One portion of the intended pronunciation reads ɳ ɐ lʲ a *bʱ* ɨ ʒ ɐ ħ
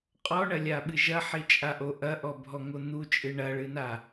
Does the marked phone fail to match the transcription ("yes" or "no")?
yes